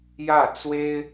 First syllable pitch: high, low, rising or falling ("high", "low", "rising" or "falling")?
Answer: falling